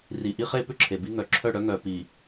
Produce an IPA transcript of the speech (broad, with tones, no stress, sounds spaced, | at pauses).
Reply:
r i˨ ʔ i˦ χ e˦ p ʏ˦ ǁʰ e˨ b i˦ ŋ œ˨ ǁʰ œ˦˨ ɽ œ˦ ŋ œ˨ p i˨